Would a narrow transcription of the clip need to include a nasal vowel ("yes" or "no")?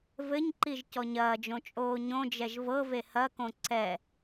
yes